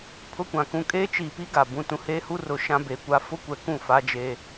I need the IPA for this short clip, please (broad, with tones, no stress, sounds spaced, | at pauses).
pʰ ʊ˦ kʷ ã˨ k ũ˦ kʼ eː˦ t͡ʃ iː˨ p i˦ ɡ a˨ b ũ˨ t ũ˨ h eː˦ h u˦ r ʊ˨˦ ʃ ã˦ b e˨ kʷ a˦ f ʊ˦ kʷ ɛ˨ k ũ˦˨ f a˦ d͡ʒ e˦